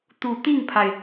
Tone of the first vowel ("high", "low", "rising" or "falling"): low